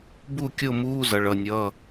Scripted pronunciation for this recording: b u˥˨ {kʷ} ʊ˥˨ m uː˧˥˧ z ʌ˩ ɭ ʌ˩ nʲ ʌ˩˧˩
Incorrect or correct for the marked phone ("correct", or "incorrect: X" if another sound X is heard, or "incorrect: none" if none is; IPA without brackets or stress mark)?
incorrect: kʲ